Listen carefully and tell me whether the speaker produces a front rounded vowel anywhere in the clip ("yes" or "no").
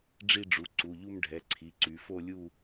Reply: yes